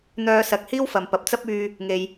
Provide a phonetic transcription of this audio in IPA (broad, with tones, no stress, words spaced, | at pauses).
n̪œː˧sɐ˨˥k̚hiː˥w fɐ˨mpɐ˨p̚ t͡sɐ˥p̚yː˧ | ŋe˧j